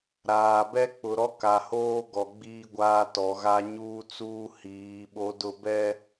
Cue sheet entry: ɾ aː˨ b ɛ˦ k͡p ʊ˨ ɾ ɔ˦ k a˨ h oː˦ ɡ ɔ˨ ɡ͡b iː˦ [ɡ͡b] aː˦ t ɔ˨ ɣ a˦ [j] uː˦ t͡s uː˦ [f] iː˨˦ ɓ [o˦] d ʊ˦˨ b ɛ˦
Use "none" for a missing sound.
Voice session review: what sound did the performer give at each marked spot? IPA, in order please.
ɡʷ, ɲ, h, o˦

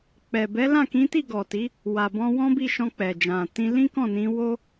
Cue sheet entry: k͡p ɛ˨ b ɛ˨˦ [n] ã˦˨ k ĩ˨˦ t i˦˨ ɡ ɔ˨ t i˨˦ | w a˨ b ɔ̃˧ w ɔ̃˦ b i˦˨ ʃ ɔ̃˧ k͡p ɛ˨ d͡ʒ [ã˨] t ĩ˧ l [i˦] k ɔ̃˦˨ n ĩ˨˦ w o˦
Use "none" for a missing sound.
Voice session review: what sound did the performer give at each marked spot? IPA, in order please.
l, ã˨, ĩ˦

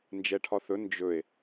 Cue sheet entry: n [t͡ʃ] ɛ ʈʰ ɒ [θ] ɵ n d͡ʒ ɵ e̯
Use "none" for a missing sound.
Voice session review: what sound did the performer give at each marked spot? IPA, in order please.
d͡ʒ, θ

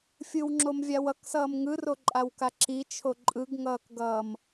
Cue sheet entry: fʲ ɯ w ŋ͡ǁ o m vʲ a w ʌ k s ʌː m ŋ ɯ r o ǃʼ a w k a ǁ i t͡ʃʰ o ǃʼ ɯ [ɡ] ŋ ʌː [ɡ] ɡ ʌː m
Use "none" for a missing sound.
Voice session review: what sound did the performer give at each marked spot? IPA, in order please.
ɡ, k

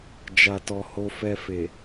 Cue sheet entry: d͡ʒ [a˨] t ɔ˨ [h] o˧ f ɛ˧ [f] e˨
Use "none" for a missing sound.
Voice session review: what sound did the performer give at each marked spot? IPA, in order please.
a˨, h, f

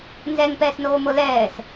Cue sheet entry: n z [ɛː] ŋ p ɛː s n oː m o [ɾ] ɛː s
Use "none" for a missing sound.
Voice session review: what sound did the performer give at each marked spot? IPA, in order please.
ɛ, l

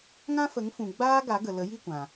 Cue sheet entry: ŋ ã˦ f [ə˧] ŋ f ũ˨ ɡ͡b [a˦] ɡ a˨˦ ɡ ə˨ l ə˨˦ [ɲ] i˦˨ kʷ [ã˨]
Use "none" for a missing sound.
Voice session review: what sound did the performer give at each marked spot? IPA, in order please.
ə˨˦, aː˦, j, ã˨

